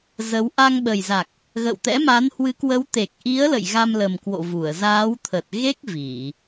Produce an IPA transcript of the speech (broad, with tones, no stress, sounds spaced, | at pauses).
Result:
z ə˨˦ w ʔ a˧ ŋ ɓ ə˨˩ j z a˨˩ k̚ | ɣ ə̰˧˨ w t̪ ɛ̰˧˥ m a˨˦ n h w ɨ˨˦ k w ə˨˦ w t̪ e˨˩ k̚ ʔ i˨˦ ə̯ l ə̰˧˨ j ɣ a˧ m l ə˨˩ m k w o̰˧˨ v u˧˩ ə̯ z aː˨˦ w t̪ʰ ə˨˩ t̚ ɣ e˦˥ k̚ v i˧˩˨